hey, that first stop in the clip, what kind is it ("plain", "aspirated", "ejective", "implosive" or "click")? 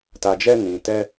plain